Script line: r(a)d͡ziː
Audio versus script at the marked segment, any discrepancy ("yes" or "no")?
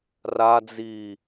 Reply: no